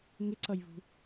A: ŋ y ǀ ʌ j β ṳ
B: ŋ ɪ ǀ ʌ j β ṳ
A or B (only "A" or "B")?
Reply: B